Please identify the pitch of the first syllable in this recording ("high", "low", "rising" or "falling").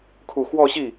low